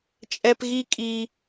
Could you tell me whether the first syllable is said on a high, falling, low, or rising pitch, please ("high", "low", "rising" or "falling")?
high